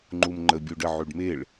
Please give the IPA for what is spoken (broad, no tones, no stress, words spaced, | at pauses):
ŋ͡ǃumŋ͡ǃə bʲuɖə ʕyɖmeɭ